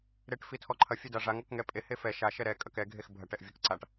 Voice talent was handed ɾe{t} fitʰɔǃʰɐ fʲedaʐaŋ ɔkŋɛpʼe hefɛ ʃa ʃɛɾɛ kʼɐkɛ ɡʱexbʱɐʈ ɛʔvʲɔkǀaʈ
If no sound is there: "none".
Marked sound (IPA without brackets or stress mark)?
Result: ʈ